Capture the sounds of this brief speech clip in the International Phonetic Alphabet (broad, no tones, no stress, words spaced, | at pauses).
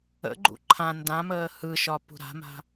ə̰ɡ͡ǃṵ ǃʰã ndãməː hɯʃɒ pṳɾa̤ma̤